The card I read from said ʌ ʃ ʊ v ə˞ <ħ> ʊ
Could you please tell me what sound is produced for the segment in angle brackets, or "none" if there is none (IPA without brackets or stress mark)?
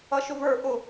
ʔ